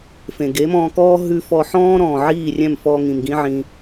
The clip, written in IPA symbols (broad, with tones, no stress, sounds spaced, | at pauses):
f ẽ˨ ɡ e˨˦ m ɔ̃ː˧ k ɔː˦ ɦ ʉ˧ f ɔ˧ ħ ɔ̃ː˦ ɾ ɔ̃ː˨ ʕ iː˦˨ rʲ ɛ̃˦˨ m f ɔː˧ ŋ ĩ˨ m ɡ ĩ˦ ʕ ĩ˧